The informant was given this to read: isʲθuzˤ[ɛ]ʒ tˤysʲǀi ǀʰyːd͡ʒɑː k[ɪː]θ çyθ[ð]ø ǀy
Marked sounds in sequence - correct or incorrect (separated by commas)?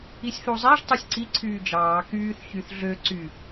incorrect, incorrect, incorrect